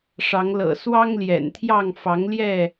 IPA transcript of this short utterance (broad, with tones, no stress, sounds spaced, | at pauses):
ʂ ɑ˨˦ ŋ l ɤ̰˨˩ s w ɑ˦ ŋ l j ɛ̰˨˩ n t̪ʰ j ɑ˥˨ ŋ f ɑ˨˦ ŋ l j ɛ˥˨